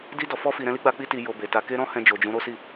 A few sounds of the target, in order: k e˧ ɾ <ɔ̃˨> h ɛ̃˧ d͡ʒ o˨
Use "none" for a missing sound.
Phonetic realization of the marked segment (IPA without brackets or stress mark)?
ɔ̃˧